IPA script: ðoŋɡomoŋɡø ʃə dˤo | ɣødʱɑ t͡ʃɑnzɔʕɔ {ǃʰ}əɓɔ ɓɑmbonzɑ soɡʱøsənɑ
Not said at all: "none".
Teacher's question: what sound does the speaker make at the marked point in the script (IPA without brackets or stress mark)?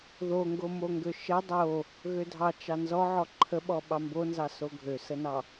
ǃʰ